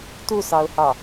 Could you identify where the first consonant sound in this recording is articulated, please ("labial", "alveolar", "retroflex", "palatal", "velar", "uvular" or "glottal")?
alveolar